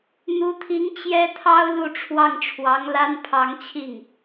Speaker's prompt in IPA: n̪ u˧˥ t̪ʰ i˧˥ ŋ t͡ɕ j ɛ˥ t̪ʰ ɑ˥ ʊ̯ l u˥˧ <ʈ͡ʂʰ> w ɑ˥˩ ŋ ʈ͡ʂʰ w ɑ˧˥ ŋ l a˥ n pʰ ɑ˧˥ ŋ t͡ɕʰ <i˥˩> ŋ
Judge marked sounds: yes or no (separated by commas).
yes, yes